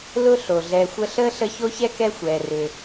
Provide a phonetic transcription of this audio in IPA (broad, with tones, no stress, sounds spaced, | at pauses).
l ʊ˥ ɬ o˩ ɮ ɛ˨ xʷ ə˦ ɬ əː˥ ɬ ə˦ ç o˥ ç ɛ˥ k ɛ˥ xʷ ɛː˩ r ʏ˩